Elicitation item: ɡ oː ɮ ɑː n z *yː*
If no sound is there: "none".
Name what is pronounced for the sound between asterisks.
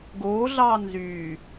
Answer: yː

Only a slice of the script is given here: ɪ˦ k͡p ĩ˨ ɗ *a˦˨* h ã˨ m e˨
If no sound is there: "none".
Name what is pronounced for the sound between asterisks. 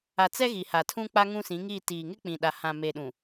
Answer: a˨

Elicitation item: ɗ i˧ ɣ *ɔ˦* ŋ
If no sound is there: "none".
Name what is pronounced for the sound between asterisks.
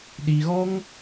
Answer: ɔ˦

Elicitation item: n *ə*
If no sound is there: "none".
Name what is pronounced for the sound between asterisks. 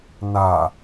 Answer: a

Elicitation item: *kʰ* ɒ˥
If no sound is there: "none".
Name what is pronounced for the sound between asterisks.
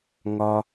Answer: ŋ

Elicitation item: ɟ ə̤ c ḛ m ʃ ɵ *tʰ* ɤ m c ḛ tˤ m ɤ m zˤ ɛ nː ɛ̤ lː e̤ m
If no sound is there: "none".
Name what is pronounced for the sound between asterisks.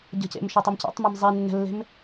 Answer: tˤ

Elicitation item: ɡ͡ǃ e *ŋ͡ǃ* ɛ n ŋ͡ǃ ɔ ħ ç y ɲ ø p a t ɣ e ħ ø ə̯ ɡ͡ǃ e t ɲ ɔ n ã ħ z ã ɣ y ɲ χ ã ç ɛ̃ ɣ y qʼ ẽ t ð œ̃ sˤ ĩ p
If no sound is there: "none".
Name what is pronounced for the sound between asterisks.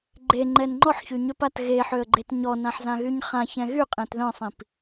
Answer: ŋ͡ǃ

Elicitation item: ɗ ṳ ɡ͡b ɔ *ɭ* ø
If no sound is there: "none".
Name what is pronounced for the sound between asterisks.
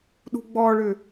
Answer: ɭ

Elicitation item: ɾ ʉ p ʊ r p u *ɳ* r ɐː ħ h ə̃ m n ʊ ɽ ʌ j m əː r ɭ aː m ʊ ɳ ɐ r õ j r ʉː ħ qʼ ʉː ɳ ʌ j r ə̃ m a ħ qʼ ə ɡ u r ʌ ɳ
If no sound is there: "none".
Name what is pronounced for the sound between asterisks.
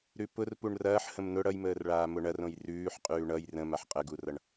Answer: ɳ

